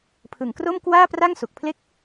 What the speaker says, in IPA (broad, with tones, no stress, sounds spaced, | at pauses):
pʰ ɯ˨˩ ŋ k r o˥˩ m k w aː˥˩ p r a˥˩ ŋ s u˨˩ k̚ pʰ l e˥˩ k̚